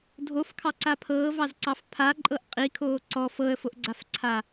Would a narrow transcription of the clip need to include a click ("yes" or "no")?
yes